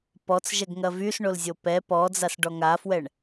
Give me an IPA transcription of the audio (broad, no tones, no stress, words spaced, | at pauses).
pɔt͡sʒɛɡŋɐ vysɳolzʲo pɛ pɔd͡zasɖɔ ŋafwɛɳ